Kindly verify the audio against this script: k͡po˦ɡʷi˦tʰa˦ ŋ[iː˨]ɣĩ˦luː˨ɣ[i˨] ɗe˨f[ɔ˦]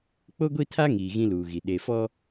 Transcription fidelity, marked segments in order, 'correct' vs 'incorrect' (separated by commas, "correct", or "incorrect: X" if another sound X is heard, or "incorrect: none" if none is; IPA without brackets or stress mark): correct, correct, correct